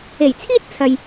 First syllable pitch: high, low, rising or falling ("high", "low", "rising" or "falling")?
low